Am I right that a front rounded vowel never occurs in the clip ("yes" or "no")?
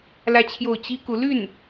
no